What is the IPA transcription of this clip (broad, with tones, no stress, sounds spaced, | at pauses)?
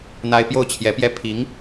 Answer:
n̪ a˥ ɪ̯ p j o˥˩ ʊ̯ t͡ɕʰ j ɛ˧˥ p j ɛ˥ pʰ i˧˥ ŋ